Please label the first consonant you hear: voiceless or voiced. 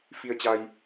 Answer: voiceless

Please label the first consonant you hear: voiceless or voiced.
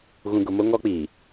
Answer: voiced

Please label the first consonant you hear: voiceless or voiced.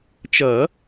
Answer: voiceless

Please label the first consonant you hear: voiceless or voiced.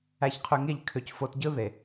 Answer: voiceless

